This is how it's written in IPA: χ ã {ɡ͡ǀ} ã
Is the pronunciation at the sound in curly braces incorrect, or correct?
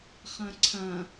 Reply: incorrect